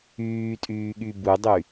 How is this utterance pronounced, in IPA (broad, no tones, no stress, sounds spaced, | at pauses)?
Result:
yː tʼ yː ɠ y b u dˤ y